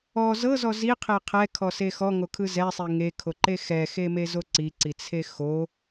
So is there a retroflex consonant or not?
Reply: no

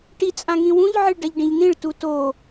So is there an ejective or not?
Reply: yes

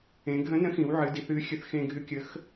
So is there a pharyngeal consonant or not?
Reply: yes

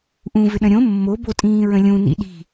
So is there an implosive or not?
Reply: yes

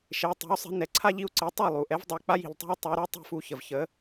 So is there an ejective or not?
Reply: no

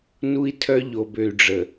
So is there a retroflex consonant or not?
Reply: yes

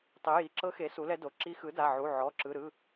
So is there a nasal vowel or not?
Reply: no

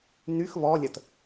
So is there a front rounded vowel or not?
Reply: yes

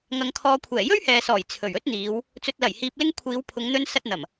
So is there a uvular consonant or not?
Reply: no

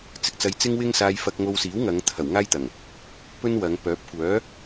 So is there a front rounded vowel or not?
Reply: yes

